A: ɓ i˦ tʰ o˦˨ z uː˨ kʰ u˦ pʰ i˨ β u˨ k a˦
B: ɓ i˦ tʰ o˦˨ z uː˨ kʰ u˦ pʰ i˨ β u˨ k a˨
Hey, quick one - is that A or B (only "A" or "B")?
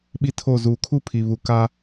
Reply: A